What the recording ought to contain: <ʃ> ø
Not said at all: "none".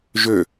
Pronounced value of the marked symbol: ʒ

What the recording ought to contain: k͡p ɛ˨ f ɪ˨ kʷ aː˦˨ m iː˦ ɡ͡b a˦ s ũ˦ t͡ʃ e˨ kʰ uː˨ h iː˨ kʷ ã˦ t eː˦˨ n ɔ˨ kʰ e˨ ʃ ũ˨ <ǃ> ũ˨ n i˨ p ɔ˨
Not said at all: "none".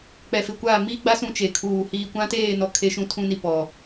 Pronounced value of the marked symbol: tʰ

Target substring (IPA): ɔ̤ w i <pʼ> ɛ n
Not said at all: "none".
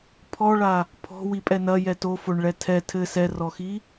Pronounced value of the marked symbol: pʼ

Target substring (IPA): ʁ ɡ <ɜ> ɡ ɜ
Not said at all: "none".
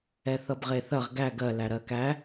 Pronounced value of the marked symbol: æ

